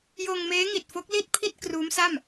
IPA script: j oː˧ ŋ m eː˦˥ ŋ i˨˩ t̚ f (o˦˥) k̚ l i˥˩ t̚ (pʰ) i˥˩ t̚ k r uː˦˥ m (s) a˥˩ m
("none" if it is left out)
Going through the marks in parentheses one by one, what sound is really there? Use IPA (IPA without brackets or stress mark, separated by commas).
o˦˥, pʰ, s